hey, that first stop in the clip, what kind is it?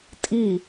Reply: ejective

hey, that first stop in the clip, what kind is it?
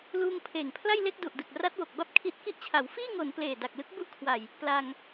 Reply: aspirated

